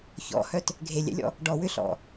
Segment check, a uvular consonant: absent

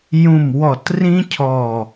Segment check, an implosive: absent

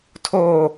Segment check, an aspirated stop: present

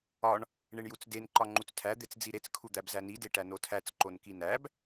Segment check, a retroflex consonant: present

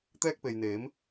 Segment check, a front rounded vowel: absent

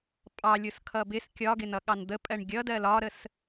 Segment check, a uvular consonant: absent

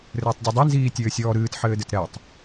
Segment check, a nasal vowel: absent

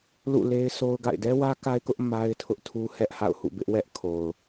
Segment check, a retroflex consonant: absent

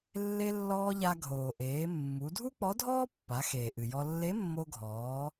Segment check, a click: absent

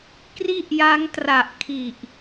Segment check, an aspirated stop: present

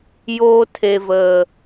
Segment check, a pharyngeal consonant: absent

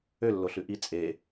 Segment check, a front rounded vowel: present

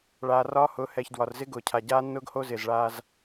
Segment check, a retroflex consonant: present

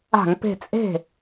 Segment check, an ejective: present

